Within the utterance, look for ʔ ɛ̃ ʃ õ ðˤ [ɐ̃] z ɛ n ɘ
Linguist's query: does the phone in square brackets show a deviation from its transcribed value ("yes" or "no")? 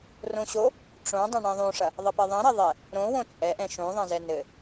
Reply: no